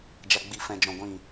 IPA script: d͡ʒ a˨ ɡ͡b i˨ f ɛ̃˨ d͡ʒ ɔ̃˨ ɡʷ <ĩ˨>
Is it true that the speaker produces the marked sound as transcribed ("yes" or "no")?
yes